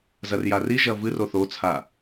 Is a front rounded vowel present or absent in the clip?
absent